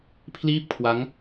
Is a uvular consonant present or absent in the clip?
absent